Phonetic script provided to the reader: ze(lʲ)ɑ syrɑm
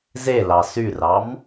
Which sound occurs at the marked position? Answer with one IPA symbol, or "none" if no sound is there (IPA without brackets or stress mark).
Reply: l